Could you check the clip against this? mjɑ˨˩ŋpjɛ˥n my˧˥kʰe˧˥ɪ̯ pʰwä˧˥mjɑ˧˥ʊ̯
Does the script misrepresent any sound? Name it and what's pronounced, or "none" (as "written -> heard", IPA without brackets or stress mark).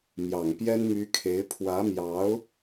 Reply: none